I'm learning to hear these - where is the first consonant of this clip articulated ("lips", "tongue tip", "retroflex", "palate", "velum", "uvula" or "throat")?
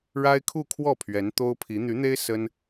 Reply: retroflex